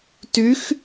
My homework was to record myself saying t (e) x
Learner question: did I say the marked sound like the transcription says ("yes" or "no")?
no